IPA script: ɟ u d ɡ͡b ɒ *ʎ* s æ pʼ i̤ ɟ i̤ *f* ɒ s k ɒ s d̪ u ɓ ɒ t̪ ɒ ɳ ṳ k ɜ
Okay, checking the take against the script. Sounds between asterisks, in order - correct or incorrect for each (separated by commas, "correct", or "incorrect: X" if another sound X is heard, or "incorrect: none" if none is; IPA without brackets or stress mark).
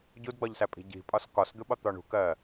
correct, incorrect: pʼ